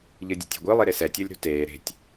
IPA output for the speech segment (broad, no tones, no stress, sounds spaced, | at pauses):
ʎ ɯ dʲ ṳ tʲ e̤ ɡʷ ɯ lˠ i ɾ e s ɛ tʲ o lʲ ɾ ṳ t eː ɾ e̤ tʲ